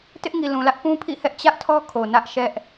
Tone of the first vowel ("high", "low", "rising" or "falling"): high